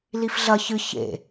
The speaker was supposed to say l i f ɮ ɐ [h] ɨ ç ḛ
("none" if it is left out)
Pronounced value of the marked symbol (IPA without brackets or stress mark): ç